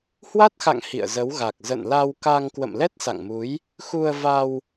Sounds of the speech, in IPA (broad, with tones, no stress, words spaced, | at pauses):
hwa˦˥t̚xa̰˧˨ŋ hḭ˧˨ə̯zə˨˦wɣa˨˩k̚ zə̰˧˨nla˧wka˧ŋ kwə̰˧˨mlɛ˦˥t̚sa̰˧˨ŋmu˨˦j | xu˧ə̯va˧w